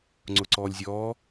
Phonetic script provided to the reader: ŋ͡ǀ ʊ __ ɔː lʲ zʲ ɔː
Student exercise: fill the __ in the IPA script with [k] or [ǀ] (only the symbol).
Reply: ǀ